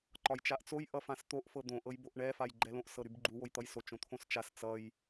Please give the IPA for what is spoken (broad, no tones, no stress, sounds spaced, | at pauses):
ǃ ɒ j t͡ʃ a ʔ t͡s o j ʔ ʌ f ã s t̪ o ʔ f ɤ d̪ õ ʔ ɤ j b o ʔ ɳ ɛ f a j ɡ͡ǃ ɛ l õ ʔ s ɤ ɾ y b ɡ͡ǃ u w o j t̪ ʌ j s o t͡ʃ õ t̪ʰ õ s t͡ʃ a s t͡s ʌ j